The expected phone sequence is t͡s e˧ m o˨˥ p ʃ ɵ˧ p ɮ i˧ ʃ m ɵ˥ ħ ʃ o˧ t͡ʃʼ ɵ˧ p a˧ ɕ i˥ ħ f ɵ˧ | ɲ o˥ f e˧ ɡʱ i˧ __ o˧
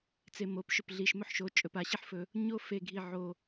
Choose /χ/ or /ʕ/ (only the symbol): ʕ